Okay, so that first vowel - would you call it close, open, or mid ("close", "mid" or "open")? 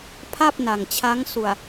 open